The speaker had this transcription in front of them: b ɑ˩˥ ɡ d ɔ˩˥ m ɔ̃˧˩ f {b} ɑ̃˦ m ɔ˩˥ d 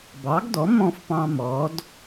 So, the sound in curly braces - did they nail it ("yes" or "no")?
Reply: no